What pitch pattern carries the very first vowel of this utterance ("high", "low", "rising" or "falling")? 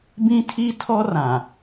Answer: high